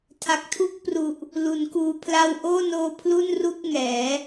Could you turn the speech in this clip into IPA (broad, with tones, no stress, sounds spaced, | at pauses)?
tʰ a˨˩ k̚ tʰ u˥˩ k̚ p r u˨˩ ʔ | l u˩˦ n k uː˧ pʰ l a˧ w ʔ oː˥˩ n oː˧ pʰ l u˥˩ n r u˥˩ k̚ ŋ ɛː˩˦